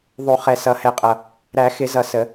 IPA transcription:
ðˤu˨˩˦ χɛ˨˩sʌ˨˩˦hɛ˨˩qʼʌ˨˩ | ɾæ˨˩˦xɪ˨˩˦zʌ˨˩ sə˨˩˦

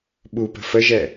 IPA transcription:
ɓupə̤ fəʒɛ

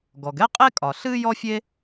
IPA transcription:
ɡɔ˩ɡɛ˥qʼe˥kʼɒ˩ ɬɨː˥jɔ˥fʲe˥

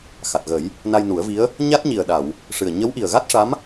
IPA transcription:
xa˨˩t̚ɣə˨˩˦j | na˧jnu˨˩˦ə̯vi˧˥ə̯ | ɲa˦˥t̚ɲi˨˩ə̯ɗa˨˩˨w | ʂɨ˨˩ə̯ ɲə˧˥wʔi˨˩ə̯ɣa˦˥t̚ʂa˧˥m

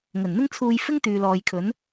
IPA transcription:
ŋɵ˨˩nn̪ɪ˥ŋt͡sʰuː˧jfɪ˥ŋ t̪yː˨lɔː˨jkʰɵ˨˥n

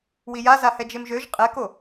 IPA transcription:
wijaza hɛd͡ʒemʒøʒ qʼɛko

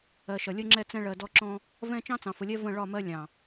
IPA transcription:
ɜ˨ʃʌ˨lʲə˦ŋ͡ǁɛ˦ t͡sɛ̃˦ɭɜ˨ dɔ˦ǁɔ̃˦ | vɛ̃˦ t͡ʃɑ̃˦t͡sɑ̃˨fʊ˨lʲɛ˦ və̃˦˨ ɭɒ˦˨mɜ˦ lʲɑ̃˨

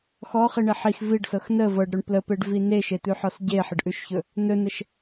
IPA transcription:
xɔχiɳe ħix viɖsɤx nə vɤɖɾɵɳ pləpeɖvi neʃet̪ʉħɔs ɟeħəɖʔʉʃçɵ | nɵnəʃ

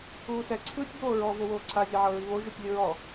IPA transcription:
uːsɛ ǀʰɯːtʲboːɹɔ vowoːǀʰa zʲɛʕɤɹiβo ʒutʲlʲɯɹɔ

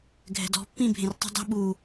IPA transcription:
ɡʱɛ̤dɔ̤ pːĩ bʱẽrtˤi̤dˤi̤ ɓu

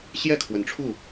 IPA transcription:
ɕjɛ˥˨kʰwə˨˩nʈ͡ʂʰu˥˨

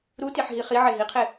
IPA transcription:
ɾutiħɦi χiʕe ɦiqʰe

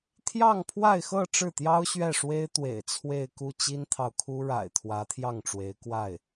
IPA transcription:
t̪ʰjɑ˥˧ŋpʰwa˥˧ɪ̯xɤ˥˧ ʈ͡ʂɻ̩˥˩t̪jɑ˥ʊ̯ ɕɥɛ˥˩ʂwe˥ɪ̯t̪wḛ˨˩ɪ̯ t͡sʰwe˥˧ɪ̯ku˥˩ t͡ɕi˥nt̪ʰɑ˨ʊ̯kʰu˥ ɻa̰˨˩ɪ̯ t̪ʰwä˧˥t̪ʰjɑ˥˩ŋʈ͡ʂwe˧˥ɪ̯ kwa˥˩ɪ̯

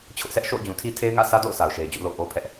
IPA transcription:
t͡ɕʰʊ˦ʔsɛ˦ʔ ʃo̰˦˨ʊ̯d͡ʑũ˨tʰi˦ tʰe˦ɪ̯ŋä̰˦˨sä˦do̰˦˨ʊ̯ sʰa˨ʊ̯ʃe˨ɪ̯d͡ʑṵ˦˨ lo̰˦˨ʊ̯ʔo˦pʰɛ˦ʔ

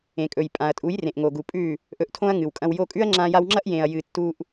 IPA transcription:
ẽ˨kʼɵ˨jpʼã˨ɐ̯tʼu˨˦j rẽ˨ʔŋo˨ɡu˨pʼʉ˦˨ | ʔɵ˧ʔtʰõ˦ɐ̯ŋɨ˨wkʼɐ̃˧w jo˧kʼʉ˦ɐ̯ŋ͡ǁã˧ ja˧wŋ͡ǁɐ˦ʔ jẽ˨ɐ̯jɨ˨ tːu˧ʔ

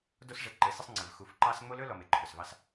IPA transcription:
do˦sʐɘ˨ǃɘ˨˦ sɘ˦sˤŋ͡ǀɘ˨v xu˨fǃɑ˦s ŋ͡mo˦lɵ˦ lɔ˨me˨ǃʰɵ˨svɑ˦s

